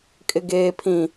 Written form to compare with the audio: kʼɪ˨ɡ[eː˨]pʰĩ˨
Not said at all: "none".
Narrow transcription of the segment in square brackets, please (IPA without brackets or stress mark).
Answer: eː˨